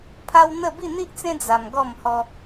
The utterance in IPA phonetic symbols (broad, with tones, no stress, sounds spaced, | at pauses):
pʰ a˦ w n̪ ə˥˧ b i˥˧ n̪ i˦ ʔ t͡s ẽ˦ d͡z a˧ m ɡ ɔ˥˧ m h ɔ˧